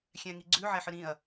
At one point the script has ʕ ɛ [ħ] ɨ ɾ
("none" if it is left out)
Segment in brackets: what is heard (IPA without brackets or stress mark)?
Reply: ħ